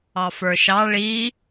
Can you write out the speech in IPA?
ɑfə˞ʃɑ ɭi

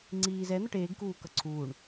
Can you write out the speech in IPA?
ŋ͡ǀiːz ɛ n̪ʌʈeːɡ kuːkʌǀʰuːɳ

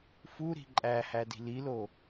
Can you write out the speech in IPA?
fuɾi̤ ǃʼæhæ di̤lilo

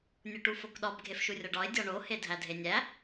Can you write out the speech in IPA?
nʲuʈufokɗɒb ɡʱefʃurʲɒɖɒɪ̯ dʲɒɳo hedʱædʱenʲæ

